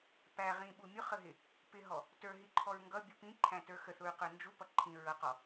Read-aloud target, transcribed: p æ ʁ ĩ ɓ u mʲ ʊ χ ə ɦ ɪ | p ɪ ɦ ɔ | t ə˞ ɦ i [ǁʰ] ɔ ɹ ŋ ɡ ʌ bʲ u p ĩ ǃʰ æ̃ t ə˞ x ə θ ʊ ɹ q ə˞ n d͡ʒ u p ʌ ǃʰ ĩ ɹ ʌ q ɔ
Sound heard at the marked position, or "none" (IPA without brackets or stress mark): ǃʰ